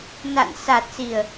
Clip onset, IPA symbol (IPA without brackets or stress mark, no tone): n